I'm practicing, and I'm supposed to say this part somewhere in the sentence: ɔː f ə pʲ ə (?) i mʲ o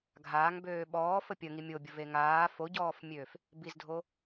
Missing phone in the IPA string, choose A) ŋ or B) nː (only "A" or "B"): A